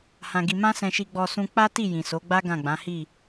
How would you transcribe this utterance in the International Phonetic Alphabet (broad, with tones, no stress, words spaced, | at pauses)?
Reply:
hã˧ɡi˧ mã˦sɛ̃˧ʃi˧ɡ͡bɔ˧ sũ˧k͡pa˦ti˦˨ jĩ˨so˨˦ɡ͡ba˦ ɡã˦˨ɡ͡bã˨˦hi˦˨